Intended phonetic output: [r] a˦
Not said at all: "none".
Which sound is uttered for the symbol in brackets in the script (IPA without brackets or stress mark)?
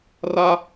r